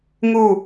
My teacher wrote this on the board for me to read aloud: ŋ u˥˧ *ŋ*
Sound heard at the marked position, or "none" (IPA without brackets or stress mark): none